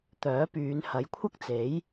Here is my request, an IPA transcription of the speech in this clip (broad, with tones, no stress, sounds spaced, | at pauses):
t̪ œː˨˥ p yː˨˧ n h ɐ˨˥ j kʷʰ ɐ˥ k̚ t͡s e˨˥ j